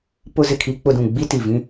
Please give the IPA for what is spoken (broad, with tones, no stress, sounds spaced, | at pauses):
p ʊ˦ z ɪ˨ kʰ i˦ k͡p ʊ˦ d ũ˨ ɡ͡b i˦ t i˨ v ĩ˦